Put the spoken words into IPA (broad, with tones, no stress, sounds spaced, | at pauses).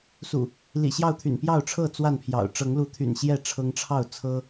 s ṵ˨˩ | l ḭ˨˩ ɕ j ɑ˥˨ ʊ̯ t̪ʰ y̰˨˩ n p j ɑ˥˨ ʊ̯ ʈ͡ʂʰ ɤ˥˨ t͡s w a˥˨ n pʰ j ɑ̰˨˩ ʊ̯ ʈ͡ʂ ɤ˨˦ ŋ l u˨˦ t̪ʰ y̰˨˩ n ɕ j ɛ˥˨ ʈ͡ʂʰ ɤ˦ ŋ ʈ͡ʂʰ ɑ˥˨ ʊ̯ t͡sʰ ɤ˦